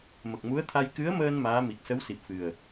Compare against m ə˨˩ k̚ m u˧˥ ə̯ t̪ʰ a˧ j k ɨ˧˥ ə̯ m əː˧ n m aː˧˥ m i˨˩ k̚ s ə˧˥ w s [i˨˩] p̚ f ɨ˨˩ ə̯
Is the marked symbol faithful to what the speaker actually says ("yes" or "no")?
yes